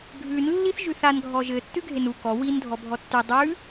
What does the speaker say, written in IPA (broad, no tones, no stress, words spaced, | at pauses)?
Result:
ɡʱʉn lːiθʒʉθan ɡʱɔʒɘ tːʉɡʱenu kɔ win dʱɔbʱɔtːy dˤʉ